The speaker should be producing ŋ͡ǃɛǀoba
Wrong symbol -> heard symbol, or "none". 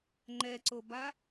none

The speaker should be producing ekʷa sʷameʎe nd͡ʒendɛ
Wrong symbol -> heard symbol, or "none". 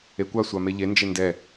none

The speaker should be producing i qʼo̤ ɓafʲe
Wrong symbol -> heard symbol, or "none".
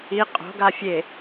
ɓ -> ɡ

